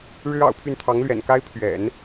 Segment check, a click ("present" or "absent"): absent